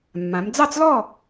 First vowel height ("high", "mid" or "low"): low